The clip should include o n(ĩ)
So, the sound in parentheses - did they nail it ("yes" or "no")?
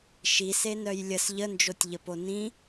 yes